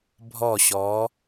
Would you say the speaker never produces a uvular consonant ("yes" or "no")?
yes